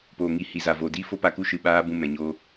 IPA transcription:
p oː˨ ŋ i˨ h i˨ z a˨ v o˨ d i˦ f o˦ p a˧ k u˦ ʃ ɨ˧ ɓ aː˦ b ũ˧ m ɛ̃˨ ɲ o˧

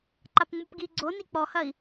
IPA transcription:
ǃ a p ŋ͡m u p ɡ i ɡ͡ǀ o n i k͡p ɔ h ɐ i̯

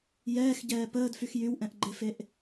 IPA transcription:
j ɛː x ɟ ɛː p əː d f y x j y w ʔ ɛ̃ ʔ ɡ͡ǃ e f e ʔ

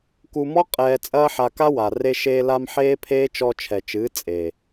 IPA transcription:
k u˧ m ɔ˦ qʼ ɛː˧ t͡sʼ ɐː˦ ħ a˧ k a˦ w a˨ r e˧ ʃ eː˧ l a˧ m ħ eː˦ pʰ eː˦ t͡ʃ ɔ˧ t͡ʃʰ ɛ˨ t͡ʃ ɨː˨˦ t͡sʼ e˨

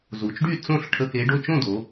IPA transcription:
z u˩˧ t͡ʃ ɖ y˥˨ t͡s õ˥˨ ɬ ʈʰ ə˧˥˧ k e˨˥ ɖ o˧˥˧ t͡ʃ õ˥˨ d o˩˧

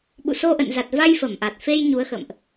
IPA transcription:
ɓ ṵ˧˨ s o˧ ʔ ə̰˧˨ n z a˨˩ t̚ v a˧ j f ə˧˩ m ʔ a˨˩ t̚ f e˧ j ɲ u˨˦ ə̯ x ə̰˧˨ m ʔ

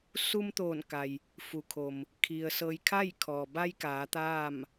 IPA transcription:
s u˧ m t̪ oː˧˩ n k a˩ j | f u˩ kʰ o˩ m | kʰ i˩ ə̯ s ɤː˧ j kʰ a˥˨ j kʰ ɔː˩ b a˧ j k aː˩˧ t̪ aː˥˨ m

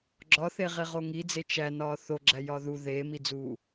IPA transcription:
ɡ͡ǁ ɒ θ e ʁ e ʁ o ŋ i d͡z e t͡ʃ æ n ɒː θ o ɡ͡ǁ æ j ɒ ð u ð eː m i d͡z uː

